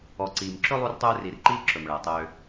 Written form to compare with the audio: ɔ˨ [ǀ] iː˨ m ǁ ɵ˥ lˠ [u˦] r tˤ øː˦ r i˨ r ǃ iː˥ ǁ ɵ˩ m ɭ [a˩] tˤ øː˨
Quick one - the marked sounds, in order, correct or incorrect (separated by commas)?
correct, correct, incorrect